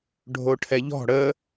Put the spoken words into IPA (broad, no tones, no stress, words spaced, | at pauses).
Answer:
ɖʱoʈʰɛʎɔ̤ ɽə